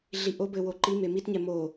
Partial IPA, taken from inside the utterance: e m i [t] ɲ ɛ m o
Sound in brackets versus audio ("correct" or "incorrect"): correct